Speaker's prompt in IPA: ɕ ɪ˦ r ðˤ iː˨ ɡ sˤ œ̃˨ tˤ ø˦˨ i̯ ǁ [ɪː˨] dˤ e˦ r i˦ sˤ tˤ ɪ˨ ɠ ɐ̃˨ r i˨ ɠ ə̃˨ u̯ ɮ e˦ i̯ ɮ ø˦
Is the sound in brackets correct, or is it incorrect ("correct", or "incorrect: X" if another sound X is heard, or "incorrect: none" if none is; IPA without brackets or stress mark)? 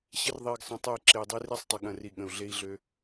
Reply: correct